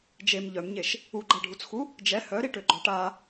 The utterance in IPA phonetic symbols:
d͡ʒ e m ʎ œ m ɲ e ʃ | u ɡ͡ǃ a ɖʱ u t͡s x u | d͡ʒ ɛ h œ ɾ i ʈ ø ɡ͡ǃ ɔ ʈ a

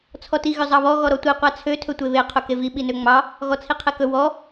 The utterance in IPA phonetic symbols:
t͡sʰ ɔ t i ɣ ʏ zˤ ɑ β ɔ ɣ ɔ ɾ ɔ tʷ i qʷ a t͡sʰ ø tʰ ɵ tʷ e β e qʰ ɵ k e v i ɓ i n ø ŋ͡m ɑ | ɣ ɔ t͡sʰ i qʰ e k ɵ w ɔ

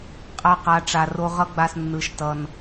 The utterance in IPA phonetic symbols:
qʼ a˧ q a˨ ʈ͡ʂ a˨ r o˧ ʁ ʌ˦ ɡ͡b a˧ s nː ɯ˨ ʃ t ʌ˨ n

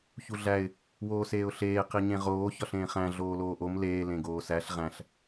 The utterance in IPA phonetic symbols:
ç u ɮ æ ɪ̯ | w oː s eː ʊ̯ ɬ eː q i ɲ ẽ ʁ oː ç ɒ ɬ ẽː χ æ̃ ɮ oː l oː ʔ o m l eː l ẽ ɡ oː s æ ɬ ʁ æ̃ ɬ

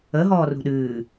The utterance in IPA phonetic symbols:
ə ɦ ɔː r ṳ ɗ ɨː

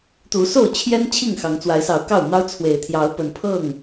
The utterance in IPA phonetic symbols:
t̪ u˨˦ s o˥˨ ʊ̯ t͡ɕʰ j ɛ˦ n t͡ɕʰ i˥˨ ŋ x ɑ˨˦ ŋ t͡s w a˨˦ ɪ̯ s ɑ˨˦ ʊ̯ k ɑ˥˨ ʊ̯ n̪ ɑ˦ ʊ̯ t͡sʰ w e˨˩ ɪ̯ t̪ʰ j ɑ˨˦ ʊ̯ p ə˨˦ n pʰ ɤ˥˨ ŋ

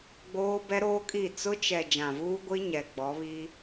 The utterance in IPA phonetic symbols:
ɡ͡b oː˦ b ɛ˦ ɾ oː˦ kʼ i˦˨ t͡s ʊ˦ t͡ʃ ɛ˨ d͡ʒ ã˨ v uː˦ ɡʷ i˦ ɲ ɛ˨ ɡ͡b ɔ˨˦ β i˦

